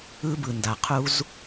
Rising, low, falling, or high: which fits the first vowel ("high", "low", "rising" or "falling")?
high